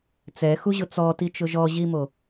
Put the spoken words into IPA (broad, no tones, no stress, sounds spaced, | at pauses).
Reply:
t͡s ɛ x u ʑ ʊ t͡s ɔ t i t͡ʃ ʊ ʒ ɔ ʑ i m o